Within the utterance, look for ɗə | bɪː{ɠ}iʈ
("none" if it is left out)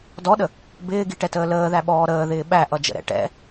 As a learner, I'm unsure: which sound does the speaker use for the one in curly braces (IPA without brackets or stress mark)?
ɡ